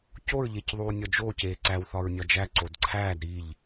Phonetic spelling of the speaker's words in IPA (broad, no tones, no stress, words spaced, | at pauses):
coɹʎecðˤuː nʲɒd͡ʒoːc eːǀæwθɒɹ nʲɒd͡ʒæ ǀodǀʰæːd ɾiʎ